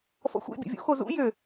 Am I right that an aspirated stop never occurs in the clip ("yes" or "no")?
yes